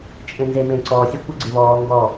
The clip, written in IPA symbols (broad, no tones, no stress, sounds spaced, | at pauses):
t͡ʃʼ ẽ n z e m ẽ ǀ ɔ sʲ e kʷ ə ɡ͡ǀ ɪ β ɔː ŋ ɡ ɔ